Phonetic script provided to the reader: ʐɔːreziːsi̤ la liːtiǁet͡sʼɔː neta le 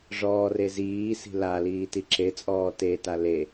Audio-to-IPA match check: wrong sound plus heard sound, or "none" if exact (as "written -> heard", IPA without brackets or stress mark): n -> t